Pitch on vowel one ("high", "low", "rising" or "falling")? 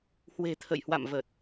low